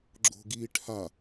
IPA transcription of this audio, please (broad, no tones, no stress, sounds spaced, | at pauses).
ɡ͡ǁ o̤ ɡ iː ʈʰ a